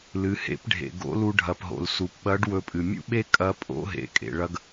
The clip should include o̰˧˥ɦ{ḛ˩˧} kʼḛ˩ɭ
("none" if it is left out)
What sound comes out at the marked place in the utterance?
ḛ˩˧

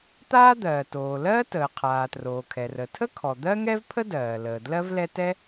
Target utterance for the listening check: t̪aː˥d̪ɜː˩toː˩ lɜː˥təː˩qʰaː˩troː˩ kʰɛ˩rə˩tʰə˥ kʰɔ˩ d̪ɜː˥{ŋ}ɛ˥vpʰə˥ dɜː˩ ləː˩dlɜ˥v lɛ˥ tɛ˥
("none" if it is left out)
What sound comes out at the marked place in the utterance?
ŋ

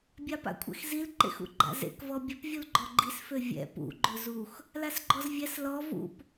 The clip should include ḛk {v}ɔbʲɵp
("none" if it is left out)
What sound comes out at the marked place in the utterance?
v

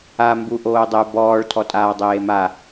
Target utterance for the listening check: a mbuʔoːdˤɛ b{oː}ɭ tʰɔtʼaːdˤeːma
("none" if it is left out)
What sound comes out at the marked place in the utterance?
ɔː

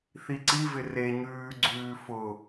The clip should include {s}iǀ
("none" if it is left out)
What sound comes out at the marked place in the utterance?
θ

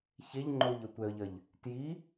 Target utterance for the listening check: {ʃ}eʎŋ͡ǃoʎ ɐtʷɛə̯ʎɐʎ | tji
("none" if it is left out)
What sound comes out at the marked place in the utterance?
ç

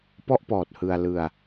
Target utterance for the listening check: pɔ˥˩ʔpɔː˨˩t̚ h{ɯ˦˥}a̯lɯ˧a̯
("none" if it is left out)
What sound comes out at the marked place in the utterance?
ɯ˧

